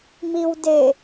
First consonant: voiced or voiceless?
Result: voiced